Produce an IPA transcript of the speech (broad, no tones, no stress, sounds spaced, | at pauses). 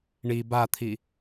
ɳ i b a t̪ʰ i